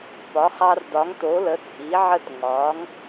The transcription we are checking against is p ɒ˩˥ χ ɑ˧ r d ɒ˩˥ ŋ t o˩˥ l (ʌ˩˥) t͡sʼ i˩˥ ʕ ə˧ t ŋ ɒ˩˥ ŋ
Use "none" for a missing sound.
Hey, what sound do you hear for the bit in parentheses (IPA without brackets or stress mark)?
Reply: ə˩˥